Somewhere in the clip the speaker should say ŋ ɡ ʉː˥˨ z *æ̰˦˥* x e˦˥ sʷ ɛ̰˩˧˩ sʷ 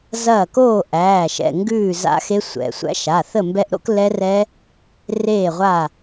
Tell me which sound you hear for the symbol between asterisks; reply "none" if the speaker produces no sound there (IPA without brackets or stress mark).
a̰˦˥